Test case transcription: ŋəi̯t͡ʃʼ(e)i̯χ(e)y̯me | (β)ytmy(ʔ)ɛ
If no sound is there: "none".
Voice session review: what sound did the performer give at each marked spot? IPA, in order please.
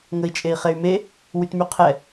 e, e, w, qʰ

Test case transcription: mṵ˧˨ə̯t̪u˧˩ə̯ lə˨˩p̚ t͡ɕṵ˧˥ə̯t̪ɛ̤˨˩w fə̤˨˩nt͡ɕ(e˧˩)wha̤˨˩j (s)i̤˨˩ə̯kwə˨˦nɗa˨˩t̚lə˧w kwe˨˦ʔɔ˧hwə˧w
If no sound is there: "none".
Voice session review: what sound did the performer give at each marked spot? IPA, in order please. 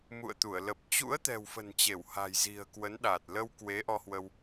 e˧˩, z

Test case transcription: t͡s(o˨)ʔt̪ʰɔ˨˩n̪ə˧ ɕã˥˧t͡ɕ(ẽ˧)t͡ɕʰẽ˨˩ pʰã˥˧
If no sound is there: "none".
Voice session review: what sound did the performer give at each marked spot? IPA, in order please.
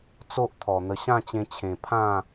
o˦, ẽ˧

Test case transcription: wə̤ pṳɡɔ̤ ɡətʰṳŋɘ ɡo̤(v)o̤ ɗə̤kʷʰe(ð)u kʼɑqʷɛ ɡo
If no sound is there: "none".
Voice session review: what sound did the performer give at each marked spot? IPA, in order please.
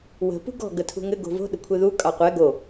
v, ð

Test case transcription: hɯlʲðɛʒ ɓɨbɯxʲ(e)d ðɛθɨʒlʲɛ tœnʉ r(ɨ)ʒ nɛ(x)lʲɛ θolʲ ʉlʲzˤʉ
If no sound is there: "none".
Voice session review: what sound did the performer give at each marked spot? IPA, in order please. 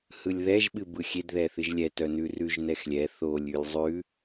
e, ʉ, x

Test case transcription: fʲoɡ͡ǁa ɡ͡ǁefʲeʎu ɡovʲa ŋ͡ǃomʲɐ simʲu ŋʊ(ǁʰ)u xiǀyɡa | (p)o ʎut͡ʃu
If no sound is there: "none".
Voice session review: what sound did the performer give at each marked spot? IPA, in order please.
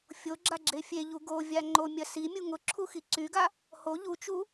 ǁʰ, h

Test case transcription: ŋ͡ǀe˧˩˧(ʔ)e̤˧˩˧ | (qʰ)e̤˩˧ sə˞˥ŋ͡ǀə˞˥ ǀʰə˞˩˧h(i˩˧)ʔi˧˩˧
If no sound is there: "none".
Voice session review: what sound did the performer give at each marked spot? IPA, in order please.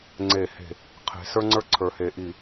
h, qʰ, e˩˧

